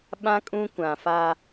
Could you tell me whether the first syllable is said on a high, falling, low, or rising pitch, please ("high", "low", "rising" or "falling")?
high